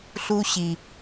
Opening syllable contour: high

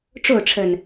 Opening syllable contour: falling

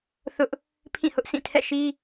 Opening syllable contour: high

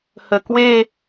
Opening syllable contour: low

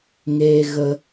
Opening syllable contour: high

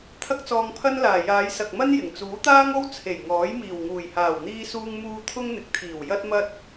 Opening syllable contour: high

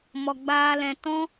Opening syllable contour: low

